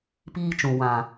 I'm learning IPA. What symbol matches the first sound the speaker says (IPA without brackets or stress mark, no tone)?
p